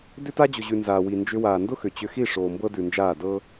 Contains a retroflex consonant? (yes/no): yes